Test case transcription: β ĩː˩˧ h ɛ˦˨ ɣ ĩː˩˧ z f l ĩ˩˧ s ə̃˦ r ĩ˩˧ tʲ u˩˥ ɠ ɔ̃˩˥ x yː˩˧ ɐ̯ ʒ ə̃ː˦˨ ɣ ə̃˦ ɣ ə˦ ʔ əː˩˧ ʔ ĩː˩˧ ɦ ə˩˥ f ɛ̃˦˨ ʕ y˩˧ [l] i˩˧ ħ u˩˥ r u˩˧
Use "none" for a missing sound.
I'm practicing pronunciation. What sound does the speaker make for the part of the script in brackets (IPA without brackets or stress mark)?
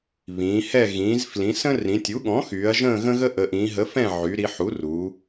ɾ